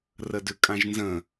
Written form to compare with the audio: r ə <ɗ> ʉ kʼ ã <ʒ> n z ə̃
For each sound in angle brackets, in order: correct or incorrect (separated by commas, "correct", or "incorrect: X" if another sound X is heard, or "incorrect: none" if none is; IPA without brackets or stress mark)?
incorrect: d, correct